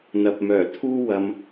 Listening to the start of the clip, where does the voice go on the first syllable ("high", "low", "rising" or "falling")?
low